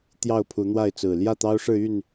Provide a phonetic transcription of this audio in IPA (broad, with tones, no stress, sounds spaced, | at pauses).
t̪ j ɑ˥˨ ʊ̯ pʰ u˨˦ n̪ w a˥˨ ɪ̯ t͡s ɹ̩˨˩ l j ä˥˨ t̪ ɑ˦ ʊ̯ ʂ ɻ̩˥˨ y˥˨ n